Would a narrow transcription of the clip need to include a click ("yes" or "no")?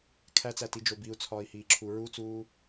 yes